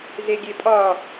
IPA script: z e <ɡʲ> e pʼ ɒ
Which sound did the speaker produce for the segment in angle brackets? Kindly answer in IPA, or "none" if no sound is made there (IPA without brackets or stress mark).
ɡʲ